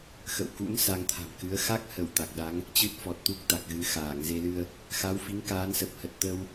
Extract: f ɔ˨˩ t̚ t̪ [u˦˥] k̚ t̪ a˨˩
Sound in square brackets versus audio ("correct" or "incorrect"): correct